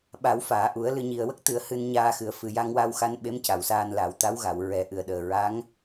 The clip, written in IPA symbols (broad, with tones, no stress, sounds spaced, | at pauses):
ɓ a˨˩˦ w f aː˨˩˨ ʔ u˨˩˦ ə̯ l ɨ˨˩ ɲ i˨˩ ə̯ w ə˦˥ k̚ t̪ ɨ˨˩˦ ə̯ h ɨ˧ n ɲ aː˧ x ɨ˨˩ ə̯ f ɨ˨˩ j a˧ ŋ w a˧ w x a˧ n ɓ e˧˥ m c a˨˩˨ w s aː˧ n l a˨˩˦ w t̪ a˧˥ w ɣ a˨˩˨ w ɹ ɛ˨˩˦ ʔ ɨ˨˩˨ ə̯ ɗ əː˨˩ ɹ a˧˥ ŋ